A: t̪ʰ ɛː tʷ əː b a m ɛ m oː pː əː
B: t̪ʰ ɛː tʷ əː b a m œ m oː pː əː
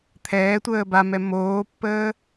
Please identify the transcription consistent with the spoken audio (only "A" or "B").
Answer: A